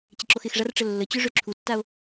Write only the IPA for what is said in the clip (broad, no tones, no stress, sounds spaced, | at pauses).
t͡ɕ ɪ ǁ o x ɪ x ʐ a r ʈ͡ʂ ə lː ə t͡ɕ ø ʐ ø ǁʰ u tː a o̯